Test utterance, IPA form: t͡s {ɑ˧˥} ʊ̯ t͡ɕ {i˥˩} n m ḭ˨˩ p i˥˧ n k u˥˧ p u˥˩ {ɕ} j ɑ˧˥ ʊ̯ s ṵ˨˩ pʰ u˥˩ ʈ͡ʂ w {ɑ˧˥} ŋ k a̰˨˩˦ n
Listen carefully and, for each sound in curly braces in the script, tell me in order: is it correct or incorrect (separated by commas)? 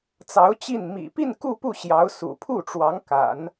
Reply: correct, correct, correct, correct